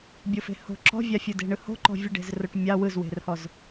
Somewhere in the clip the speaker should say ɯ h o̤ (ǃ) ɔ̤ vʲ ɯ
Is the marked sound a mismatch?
no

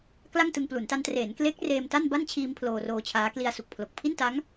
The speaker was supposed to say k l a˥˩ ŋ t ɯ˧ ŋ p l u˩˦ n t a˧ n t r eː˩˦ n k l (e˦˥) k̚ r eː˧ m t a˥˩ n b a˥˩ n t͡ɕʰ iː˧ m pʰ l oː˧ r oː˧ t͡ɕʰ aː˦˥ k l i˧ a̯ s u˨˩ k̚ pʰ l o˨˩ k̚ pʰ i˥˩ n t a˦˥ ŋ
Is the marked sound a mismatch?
no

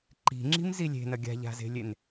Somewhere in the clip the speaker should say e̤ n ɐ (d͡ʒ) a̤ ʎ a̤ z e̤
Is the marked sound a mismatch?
yes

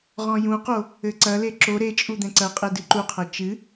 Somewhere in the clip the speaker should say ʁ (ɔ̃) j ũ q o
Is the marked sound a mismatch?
no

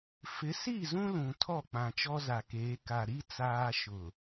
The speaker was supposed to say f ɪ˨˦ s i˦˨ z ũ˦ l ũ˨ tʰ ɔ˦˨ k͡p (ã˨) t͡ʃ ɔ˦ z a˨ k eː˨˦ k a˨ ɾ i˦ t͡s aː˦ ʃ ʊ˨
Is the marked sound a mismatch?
no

